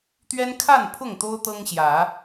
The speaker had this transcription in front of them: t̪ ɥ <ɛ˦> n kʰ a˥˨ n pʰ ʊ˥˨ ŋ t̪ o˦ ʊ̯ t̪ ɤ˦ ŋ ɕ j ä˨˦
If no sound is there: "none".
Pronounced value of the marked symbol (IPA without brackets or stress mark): ɛ˦